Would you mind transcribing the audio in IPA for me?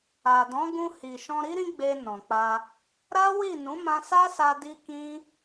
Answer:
a˨ d ɔ̃˨˦ ɡ ũ˧ h i˨ ʃ ɔ̃˧ ɾ i˦ ɾ ĩ˦ ɡ͡b e˧ n ɔ̃˨ k͡p a˧ | ɾ a˦ w i˦˨ n ũ˨˦ m ã˧ s a˦ s a˧ d i˦ k ĩ˦

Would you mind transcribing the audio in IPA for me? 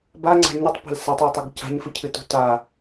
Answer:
b a ŋ͡ǀ a̤ ɲ ɨ tˤ p a̤ l s ɐ tˤ a tˤ ɵ ɡ c a̤ ɲ f ɨ cʰ ɨ t ṳ t a

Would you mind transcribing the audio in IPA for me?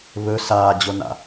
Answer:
β ɵ s aː d͡ʑ o n a̰

